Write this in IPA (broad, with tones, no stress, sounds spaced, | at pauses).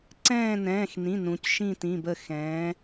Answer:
ǀ ɛ̃ː˦˨ n ɛ̃ː˩˧˩ x n ĩ˩˧˩ n ũ˩˧ c ʃ ĩ˦˨ t ĩ˩˧˩ b ə˦˨ x ɛ̃ː˩˧